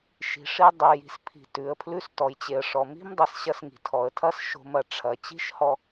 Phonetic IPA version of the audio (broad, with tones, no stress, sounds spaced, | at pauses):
ʃ i̤˩ ʂ i˧ dˤ i˩ j i̤˩ s pʰ i̤˩ t ʉ˩ ə̯ pʰ l ʉ˧ s t ɔ˩ j t͡ɕ e˩ ə̯ ʂ ɔ˩ m i̤˥ m dˤ i˩ s ɕ ɐ˧ s ŋ i̤˩ tʰ ɔ˩ ə̯ tʰ ɐ˥ s ʃ o̤˧ m ɐ˩ ʈ͡ʂʰ ɐ˩ t͡ɕ i̤˥ ʃ h ɔ˧